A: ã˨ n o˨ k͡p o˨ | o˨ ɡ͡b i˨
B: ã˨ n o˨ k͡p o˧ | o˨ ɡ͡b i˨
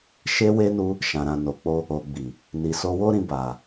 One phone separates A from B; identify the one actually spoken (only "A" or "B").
B